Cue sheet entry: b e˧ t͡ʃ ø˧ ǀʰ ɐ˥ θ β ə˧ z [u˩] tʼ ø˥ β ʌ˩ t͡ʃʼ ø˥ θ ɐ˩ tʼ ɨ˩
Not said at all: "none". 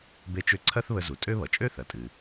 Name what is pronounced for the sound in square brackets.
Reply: u˩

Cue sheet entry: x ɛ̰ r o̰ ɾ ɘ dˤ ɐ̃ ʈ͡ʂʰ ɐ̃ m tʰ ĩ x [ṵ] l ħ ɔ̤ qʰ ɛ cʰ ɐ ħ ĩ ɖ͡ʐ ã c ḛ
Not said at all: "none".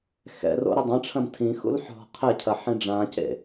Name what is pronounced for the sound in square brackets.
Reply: ṵ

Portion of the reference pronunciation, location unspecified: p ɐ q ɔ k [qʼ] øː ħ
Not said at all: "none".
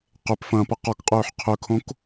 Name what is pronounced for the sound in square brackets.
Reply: qʼ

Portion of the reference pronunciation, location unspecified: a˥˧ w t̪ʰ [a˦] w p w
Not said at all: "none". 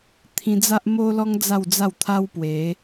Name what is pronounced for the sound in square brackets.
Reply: a˦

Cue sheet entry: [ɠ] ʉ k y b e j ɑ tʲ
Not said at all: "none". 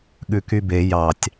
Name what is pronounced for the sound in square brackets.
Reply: ɠ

